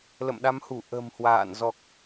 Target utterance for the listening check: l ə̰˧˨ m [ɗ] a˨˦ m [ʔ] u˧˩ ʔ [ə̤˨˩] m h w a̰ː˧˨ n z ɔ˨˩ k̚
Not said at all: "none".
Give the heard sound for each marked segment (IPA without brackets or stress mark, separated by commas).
ɗ, h, ə̤˨˩